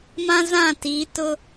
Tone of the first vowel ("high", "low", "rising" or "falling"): high